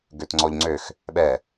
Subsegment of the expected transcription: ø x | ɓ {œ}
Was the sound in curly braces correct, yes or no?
no